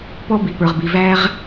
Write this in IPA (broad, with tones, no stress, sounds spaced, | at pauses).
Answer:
p ɔ˦ b i˨ p ə˞˨ ʁ b i˨ v æ˦ ʁ